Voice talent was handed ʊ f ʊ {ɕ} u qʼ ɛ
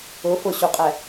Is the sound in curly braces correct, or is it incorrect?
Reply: correct